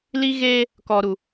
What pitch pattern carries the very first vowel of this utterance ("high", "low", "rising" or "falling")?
high